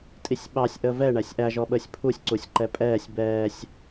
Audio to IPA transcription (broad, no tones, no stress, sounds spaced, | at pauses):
tʼ i sʲ ɓ ɑ sʲ ʔ əː v ɛ ɳ æ sʲ ʔ æ ʒ ɔ ɓ əː sʲ pʰ u sʲ ǀ u sʲ ǃ ɛ pʼ ɛː sʲ b ɛː sʲ